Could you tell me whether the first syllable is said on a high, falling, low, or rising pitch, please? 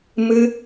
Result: high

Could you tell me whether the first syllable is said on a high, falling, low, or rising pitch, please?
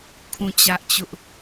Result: falling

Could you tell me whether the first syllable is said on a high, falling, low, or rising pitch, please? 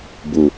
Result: low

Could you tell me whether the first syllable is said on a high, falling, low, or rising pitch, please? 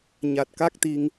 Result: low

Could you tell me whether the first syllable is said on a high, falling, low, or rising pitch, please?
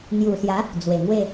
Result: low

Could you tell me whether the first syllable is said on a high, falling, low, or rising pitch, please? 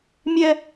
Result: high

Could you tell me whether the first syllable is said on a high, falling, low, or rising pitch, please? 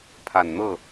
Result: low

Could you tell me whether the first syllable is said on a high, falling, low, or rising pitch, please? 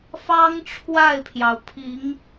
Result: high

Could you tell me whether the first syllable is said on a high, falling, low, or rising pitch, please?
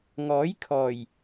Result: rising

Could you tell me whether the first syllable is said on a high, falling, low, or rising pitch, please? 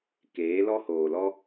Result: rising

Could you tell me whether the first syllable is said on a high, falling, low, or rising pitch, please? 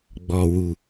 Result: low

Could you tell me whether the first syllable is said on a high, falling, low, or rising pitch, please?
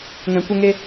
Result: low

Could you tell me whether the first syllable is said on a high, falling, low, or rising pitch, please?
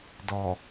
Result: low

